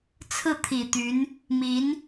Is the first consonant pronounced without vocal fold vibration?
yes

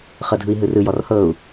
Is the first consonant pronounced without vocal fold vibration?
yes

